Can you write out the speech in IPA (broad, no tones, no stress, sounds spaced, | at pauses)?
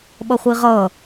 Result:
ɓ ʌ χʷ i ʁ ʌ